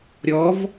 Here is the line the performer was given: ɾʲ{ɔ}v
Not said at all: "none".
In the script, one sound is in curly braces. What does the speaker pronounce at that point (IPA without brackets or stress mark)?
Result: ɔ